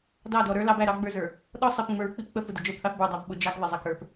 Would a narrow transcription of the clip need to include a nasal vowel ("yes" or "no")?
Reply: no